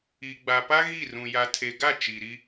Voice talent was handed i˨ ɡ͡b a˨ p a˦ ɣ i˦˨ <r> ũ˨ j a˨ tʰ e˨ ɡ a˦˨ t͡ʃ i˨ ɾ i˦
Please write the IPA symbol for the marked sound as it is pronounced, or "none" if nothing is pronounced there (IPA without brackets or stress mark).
r